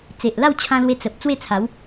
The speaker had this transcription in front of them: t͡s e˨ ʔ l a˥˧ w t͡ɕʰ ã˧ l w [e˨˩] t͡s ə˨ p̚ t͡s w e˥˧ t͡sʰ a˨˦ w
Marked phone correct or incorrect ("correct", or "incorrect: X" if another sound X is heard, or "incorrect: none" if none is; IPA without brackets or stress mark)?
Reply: incorrect: e˧